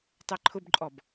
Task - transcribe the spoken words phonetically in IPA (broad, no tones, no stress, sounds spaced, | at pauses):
tˤ ɛ ǃʰ ʊ b ǃʼ ɔ b